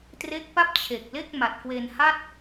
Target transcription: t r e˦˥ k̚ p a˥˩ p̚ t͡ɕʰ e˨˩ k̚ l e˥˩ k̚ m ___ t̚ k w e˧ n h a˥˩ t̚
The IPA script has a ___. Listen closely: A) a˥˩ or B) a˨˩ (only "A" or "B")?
B